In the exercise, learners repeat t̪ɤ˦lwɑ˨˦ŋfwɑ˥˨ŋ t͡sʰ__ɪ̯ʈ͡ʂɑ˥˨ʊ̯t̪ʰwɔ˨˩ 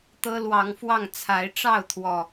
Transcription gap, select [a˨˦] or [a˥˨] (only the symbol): a˨˦